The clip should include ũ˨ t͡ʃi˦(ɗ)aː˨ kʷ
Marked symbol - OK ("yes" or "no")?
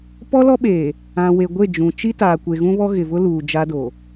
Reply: no